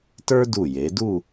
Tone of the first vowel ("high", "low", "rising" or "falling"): high